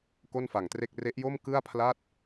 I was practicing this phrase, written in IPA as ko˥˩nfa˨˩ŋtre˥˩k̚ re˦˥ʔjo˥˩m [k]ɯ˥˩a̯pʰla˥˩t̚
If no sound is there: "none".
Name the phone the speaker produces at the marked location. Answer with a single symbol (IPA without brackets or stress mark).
k